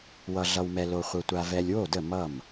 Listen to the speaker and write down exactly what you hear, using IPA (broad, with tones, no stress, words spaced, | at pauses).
wʌ˨ɮʌ˨wmɛ˨ lo˨χʷə˨tʷa˨ vɛ˨lʲwo˥˩də˥˩ mʌ˥˩m